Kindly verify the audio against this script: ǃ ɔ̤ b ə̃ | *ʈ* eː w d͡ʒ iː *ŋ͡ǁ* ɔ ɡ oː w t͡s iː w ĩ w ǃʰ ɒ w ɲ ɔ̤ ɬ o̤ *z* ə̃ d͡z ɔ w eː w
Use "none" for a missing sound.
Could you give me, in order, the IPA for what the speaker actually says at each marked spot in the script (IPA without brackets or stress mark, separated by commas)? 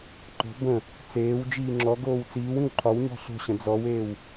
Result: t͡s, ŋ͡ǁ, ɕ